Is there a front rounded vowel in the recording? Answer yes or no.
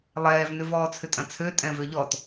yes